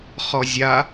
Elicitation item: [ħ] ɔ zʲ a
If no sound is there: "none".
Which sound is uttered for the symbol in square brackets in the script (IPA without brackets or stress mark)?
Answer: χ